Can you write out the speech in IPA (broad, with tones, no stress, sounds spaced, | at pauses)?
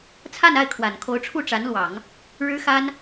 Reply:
t͡sʰ a˥˧ n a˥˩ ɪ̯ kʰ w a˨˩ n kʰ o˧˥ ʊ̯ ʈ͡ʂʰ u˥˩ ʈ͡ʂ a˧˥ n l w ɑ˨˩˦ ŋ | ɻ ɻ̩˥ x a˥ n